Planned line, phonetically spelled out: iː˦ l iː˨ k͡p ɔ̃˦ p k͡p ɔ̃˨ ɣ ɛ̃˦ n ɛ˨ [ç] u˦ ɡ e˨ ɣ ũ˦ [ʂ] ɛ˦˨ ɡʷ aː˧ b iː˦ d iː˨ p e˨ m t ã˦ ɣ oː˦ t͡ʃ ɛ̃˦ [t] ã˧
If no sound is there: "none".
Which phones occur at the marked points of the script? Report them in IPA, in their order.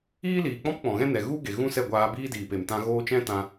ɣ, s, t

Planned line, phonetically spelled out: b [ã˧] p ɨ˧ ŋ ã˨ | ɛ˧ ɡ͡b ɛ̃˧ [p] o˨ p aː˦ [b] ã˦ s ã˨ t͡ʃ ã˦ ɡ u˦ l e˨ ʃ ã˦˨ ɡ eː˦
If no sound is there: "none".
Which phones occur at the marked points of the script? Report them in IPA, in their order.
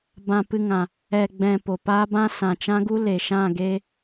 ã˧, p, b

